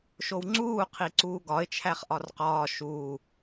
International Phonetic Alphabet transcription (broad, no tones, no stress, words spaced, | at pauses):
ʃowŋ͡ǀuːqʰi ǀuːɡɒɪ̯ t͡ʃʰæχʔɒrqɒː ʃuː